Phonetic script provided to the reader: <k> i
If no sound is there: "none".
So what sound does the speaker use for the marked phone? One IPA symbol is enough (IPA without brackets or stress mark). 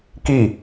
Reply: k